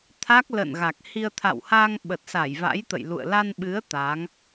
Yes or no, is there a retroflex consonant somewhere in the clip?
no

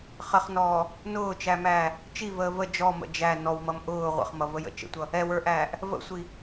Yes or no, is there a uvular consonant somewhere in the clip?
yes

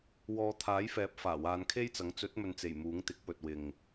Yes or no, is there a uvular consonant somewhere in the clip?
no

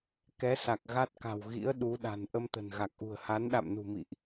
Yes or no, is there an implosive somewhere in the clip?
yes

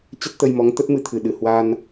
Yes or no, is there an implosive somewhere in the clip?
yes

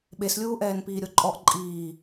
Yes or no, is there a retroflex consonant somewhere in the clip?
no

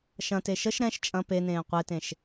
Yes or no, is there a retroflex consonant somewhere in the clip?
no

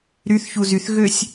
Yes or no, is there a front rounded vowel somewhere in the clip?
yes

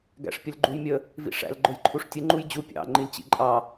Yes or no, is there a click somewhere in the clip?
yes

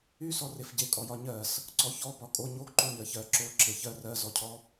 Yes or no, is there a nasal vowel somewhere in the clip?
no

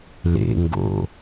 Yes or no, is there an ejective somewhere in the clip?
no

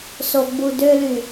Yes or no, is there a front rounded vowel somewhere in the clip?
yes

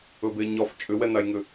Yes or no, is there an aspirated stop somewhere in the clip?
no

